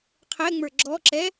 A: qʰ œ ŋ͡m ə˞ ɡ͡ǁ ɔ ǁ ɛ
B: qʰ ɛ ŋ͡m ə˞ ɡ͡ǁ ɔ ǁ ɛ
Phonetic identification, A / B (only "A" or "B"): B